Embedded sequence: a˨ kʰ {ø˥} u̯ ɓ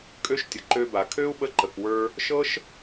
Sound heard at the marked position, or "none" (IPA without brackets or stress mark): ø˥